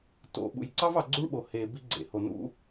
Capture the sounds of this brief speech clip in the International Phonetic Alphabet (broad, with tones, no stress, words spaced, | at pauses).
to̰˩ ɓṵ˩jǀɑ˥v ɑ˩ɡ͡ǀu˥ɳɓo˩ he˩ bi˥ɡ͡ǀḛ˩ho˩ nṵ˥